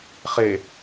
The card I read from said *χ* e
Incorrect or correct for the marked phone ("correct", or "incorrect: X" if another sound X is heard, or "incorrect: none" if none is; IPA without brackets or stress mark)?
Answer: correct